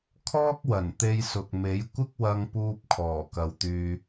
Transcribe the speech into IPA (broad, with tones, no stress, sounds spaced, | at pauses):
kʰ ɔː˥ k̚ w ɐ˨˩ n t̪ e˧ j s ʊ˨ k̚ m e˨˥ j kʷ ɪ˥ k̚ w ɐ˧ ŋ p uː˧ p̚ kʰ ɔː˨˩ k ɐ˨ w t̪ yː˧